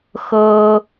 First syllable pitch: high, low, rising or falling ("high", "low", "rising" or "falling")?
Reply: high